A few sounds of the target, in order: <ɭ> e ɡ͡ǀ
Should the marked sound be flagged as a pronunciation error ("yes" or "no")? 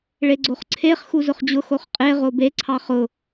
no